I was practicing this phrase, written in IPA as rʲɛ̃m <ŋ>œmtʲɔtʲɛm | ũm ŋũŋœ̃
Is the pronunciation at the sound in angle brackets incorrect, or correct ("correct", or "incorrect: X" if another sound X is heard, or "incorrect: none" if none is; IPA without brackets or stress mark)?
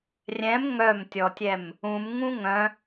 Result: correct